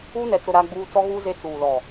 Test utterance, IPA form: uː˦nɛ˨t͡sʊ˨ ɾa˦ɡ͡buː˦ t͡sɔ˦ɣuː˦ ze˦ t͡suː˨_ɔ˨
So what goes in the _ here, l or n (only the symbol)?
l